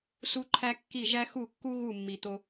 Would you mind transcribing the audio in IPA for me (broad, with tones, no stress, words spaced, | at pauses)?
su˦ǃʰæ˦kːi˦˨ ʒæ˦xu˦˨kːu˦ ɣu˦˨mːi˨t̪o˧